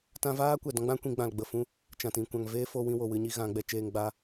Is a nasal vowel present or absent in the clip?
present